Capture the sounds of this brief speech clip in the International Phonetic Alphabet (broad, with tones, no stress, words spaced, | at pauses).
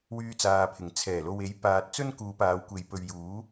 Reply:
wyː˧t͡saː˨pʰɪ˨˩ŋ t͡sʰɛː˨˩lo˨we˨˥j paː˨t̚ t͡sɵ˥nkuː˨˧paː˨˧wkʷe˨˧j pɵ˨ɥjuː˨˥